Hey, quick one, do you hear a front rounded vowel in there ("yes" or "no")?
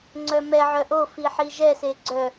yes